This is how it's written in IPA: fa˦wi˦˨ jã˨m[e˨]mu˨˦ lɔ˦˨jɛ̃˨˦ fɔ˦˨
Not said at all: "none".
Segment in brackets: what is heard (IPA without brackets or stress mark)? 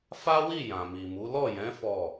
i˨